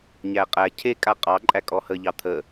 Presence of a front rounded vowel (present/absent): absent